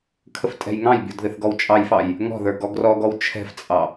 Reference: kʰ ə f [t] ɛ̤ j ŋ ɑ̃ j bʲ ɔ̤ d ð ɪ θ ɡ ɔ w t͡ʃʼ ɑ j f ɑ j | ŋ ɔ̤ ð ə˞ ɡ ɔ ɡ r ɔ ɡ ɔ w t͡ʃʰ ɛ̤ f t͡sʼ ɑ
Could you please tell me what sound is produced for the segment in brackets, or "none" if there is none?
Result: tʼ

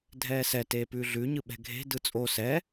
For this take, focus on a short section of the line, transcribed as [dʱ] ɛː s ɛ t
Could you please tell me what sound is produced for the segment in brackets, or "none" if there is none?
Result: dʱ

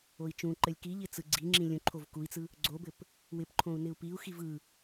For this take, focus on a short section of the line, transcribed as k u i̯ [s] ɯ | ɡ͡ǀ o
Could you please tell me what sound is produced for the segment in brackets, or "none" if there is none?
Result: t͡s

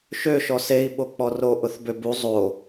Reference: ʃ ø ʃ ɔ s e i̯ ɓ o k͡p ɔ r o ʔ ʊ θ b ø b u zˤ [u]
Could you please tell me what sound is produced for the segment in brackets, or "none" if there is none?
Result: o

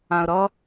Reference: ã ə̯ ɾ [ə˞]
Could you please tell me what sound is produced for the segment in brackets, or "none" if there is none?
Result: ʌ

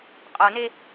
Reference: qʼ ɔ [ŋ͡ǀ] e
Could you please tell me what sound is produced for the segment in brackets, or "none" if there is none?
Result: n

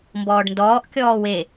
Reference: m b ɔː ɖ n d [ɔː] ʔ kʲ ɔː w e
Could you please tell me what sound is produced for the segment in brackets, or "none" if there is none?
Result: ɔː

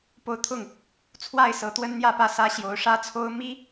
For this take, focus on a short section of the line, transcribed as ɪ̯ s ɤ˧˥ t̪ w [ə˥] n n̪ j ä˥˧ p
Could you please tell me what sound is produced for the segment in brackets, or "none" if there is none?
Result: ə˥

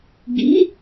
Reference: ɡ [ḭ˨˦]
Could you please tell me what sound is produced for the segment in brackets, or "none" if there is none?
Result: ḭ˨˦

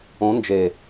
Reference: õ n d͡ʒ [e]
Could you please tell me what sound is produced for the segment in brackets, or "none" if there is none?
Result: e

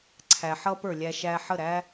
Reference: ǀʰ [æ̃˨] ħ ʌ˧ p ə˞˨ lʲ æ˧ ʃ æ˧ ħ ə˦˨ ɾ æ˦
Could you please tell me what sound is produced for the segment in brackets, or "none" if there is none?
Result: æ˨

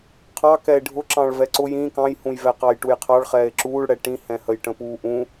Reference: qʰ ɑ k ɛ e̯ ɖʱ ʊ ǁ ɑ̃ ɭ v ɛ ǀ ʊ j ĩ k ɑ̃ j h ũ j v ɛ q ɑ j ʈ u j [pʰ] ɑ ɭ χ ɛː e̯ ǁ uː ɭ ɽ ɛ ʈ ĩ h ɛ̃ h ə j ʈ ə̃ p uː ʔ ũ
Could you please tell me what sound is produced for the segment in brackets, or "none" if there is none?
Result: qʰ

